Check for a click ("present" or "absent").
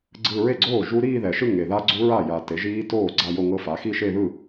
present